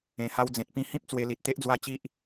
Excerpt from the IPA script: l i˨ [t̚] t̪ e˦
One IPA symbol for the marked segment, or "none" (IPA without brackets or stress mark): t̚